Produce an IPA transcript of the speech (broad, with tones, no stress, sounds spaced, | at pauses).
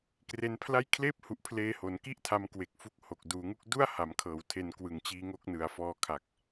k r e˧ n pʰ l a˥˩ j kʰ l eː˥˩ p̚ h u˨˩ ʔ pʰ l eː˧ h o˩˦ n k i˥˩ ʔ tʰ a˧ m k w e˨˩ k̚ f u˦˥ k̚ h o˨˩ k̚ d uː˩˦ ŋ u˦˥ k̚ d u˥˩ a̯ h a˩˦ m kʰ ɤː˩˦ w tʰ e˨˩ n k w ɯ˨˩ ŋ t͡ɕ iː˧ ŋ o˦˥ k̚ n ɯ˨˩ a̯ f ɔː˧ kʰ a˨˩ k̚